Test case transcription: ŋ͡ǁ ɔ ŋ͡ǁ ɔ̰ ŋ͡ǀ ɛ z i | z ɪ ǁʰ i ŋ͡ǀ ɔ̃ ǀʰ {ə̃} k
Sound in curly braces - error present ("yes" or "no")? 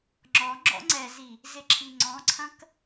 yes